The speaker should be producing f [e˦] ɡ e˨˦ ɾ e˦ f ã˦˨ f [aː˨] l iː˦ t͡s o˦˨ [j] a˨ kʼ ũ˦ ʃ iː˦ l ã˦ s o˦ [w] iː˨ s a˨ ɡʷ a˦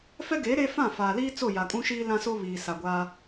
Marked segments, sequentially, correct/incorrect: incorrect: ɛ˦, correct, correct, incorrect: β

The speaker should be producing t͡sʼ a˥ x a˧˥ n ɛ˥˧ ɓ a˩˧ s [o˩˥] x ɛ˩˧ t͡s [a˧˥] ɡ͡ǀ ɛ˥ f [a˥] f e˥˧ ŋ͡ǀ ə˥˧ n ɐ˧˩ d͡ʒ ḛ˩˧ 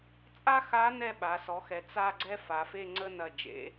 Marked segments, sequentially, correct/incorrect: incorrect: ɔ˩˥, incorrect: a˥˧, incorrect: a˩˧

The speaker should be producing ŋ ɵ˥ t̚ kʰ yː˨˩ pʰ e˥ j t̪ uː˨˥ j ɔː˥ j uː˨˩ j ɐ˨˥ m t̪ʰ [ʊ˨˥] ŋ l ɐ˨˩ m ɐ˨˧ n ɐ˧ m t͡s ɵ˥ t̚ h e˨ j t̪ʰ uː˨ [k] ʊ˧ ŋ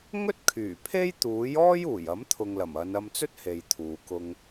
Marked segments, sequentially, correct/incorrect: incorrect: ʊ˨, correct

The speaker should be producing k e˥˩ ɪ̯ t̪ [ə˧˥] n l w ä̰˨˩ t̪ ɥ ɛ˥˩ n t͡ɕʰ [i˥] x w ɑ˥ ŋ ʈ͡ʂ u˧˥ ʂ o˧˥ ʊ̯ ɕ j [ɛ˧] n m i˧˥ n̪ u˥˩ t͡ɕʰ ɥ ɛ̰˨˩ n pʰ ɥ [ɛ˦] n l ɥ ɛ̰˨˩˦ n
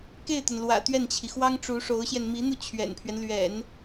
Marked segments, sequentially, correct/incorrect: incorrect: ə˩, incorrect: i˩, correct, correct

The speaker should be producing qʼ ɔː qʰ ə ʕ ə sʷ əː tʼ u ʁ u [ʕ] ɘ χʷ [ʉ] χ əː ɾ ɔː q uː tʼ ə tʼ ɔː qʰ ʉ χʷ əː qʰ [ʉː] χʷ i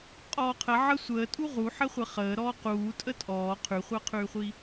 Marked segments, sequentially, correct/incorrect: incorrect: ħ, incorrect: ɘ, correct

